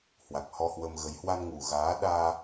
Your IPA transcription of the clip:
h w a˨˩ k̚ h ɔ˧ h w ə˧ m ɣ ə˨˦ j h w a˧ n ŋ u˨˩ ɣ aː˨˦ ɗ aː˧

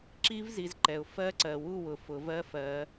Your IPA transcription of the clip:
ǁ i˦˥ v z i˨˦ z ǃ ɛ˨ ʊ̯ f ɜ˦˥ ǀ ɜ˨ w u˥˧ w ʊ˨ f ʊ˨˩˦ v ɜ˦˥ f ɜ˨˦

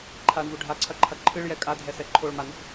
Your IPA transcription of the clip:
ǃʰ a ɳ v u ɖʱ a ǀʰ ɐ ǃʰ ɐ ǃʰ ɨ ɭ j ɛ kʼ a dʱ ɛ s ɛ ǃʰ o ɭ m a n̪ u p

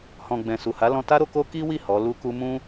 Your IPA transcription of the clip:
h ɔ̃˨ ɡ͡b ɛ̃˨ s u˨ h a˨˦ l ɔ̃˧ t a˦ ɾ o˧ k o˦ k i˦ w i˦˨ h ɔ˨˦ l u˦ k u˦ m ũ˦

